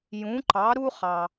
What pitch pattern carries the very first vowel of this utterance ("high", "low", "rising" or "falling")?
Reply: rising